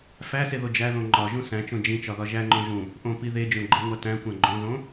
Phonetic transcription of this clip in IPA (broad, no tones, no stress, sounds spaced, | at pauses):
f æ s e ð o d͡ʒ æ ð õ ŋ͡ǃ ɒ ʒ ũ s æ̃ t͡ʃ õ d͡ʒ ĩ t͡ʃ ɒ ð ɒ ʒ æ ŋ͡ǃ õ ʒ ũ | ʔ õ p i ð e d͡ʒ õ ɡ͡ǃ e ŋʷ æ t æ̃ kʷ æ̃ ɡ͡ǃ õ z õ